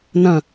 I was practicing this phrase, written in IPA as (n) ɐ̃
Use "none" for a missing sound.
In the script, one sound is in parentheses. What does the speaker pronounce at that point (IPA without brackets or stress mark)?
n